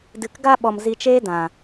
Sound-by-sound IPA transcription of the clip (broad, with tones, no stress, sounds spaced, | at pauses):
d ɨ˨ k ɡ a˧ ɓ ɔ˧ m z i˧ t͡ʃ eː˦ d ã˨